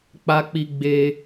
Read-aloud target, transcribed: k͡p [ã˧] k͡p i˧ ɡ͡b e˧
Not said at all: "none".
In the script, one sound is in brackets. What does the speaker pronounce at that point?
a˧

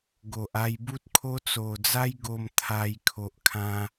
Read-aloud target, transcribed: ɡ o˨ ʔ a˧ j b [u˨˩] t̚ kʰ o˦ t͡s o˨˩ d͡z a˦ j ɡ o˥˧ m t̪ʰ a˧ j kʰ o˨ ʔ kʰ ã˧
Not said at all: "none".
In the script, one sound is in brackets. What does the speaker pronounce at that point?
u˦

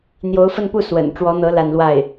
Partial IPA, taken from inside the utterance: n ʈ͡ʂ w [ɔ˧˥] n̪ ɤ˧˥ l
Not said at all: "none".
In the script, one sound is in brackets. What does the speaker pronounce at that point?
ɔ˧˥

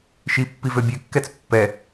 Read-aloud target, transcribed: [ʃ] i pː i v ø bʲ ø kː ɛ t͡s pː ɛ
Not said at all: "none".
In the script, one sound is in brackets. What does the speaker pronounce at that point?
ʃ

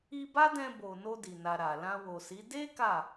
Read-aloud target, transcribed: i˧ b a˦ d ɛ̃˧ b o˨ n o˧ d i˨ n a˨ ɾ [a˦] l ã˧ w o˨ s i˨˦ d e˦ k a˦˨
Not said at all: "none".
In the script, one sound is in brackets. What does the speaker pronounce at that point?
a˨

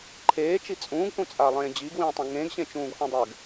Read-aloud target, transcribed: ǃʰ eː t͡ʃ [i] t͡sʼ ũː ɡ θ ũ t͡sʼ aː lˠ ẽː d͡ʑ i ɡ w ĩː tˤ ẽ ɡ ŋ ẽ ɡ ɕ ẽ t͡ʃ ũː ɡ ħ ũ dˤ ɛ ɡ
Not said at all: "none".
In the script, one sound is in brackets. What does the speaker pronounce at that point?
i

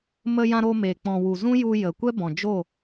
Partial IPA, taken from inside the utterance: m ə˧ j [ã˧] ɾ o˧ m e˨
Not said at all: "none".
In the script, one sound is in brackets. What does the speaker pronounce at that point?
ã˧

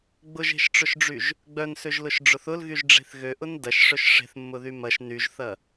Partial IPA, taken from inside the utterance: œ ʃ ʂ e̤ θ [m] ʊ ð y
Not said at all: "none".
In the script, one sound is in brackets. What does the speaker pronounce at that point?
mː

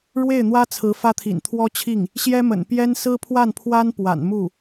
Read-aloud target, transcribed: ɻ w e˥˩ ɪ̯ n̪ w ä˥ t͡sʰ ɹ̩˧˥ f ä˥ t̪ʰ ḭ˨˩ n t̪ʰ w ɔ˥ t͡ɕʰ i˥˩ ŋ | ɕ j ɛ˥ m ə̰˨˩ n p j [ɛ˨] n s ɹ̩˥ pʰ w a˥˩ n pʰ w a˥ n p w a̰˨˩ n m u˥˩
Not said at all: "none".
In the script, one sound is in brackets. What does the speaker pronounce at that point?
ɛ˥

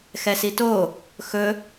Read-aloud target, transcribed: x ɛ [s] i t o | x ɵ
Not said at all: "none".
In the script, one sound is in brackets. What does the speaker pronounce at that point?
s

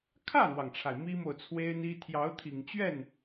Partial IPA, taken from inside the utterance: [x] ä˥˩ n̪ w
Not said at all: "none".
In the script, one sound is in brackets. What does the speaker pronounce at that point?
kʰ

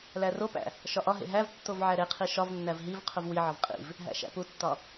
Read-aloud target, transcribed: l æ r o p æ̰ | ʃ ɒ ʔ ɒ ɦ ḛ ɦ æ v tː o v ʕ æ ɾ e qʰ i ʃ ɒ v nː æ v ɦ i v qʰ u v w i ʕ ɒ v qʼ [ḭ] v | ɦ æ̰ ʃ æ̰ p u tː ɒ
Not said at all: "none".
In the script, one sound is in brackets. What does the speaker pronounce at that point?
ḭ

